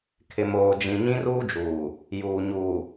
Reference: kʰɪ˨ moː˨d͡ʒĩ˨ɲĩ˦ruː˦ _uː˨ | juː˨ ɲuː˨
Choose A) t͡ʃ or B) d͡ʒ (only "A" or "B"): B